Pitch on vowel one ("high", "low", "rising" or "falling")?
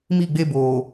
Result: falling